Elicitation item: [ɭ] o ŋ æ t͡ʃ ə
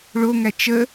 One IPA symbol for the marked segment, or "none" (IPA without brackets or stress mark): ɭ